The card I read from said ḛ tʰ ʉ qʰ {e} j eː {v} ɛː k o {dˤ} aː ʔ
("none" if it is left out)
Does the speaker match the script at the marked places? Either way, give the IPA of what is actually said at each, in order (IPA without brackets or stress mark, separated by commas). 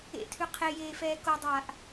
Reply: e, f, dˤ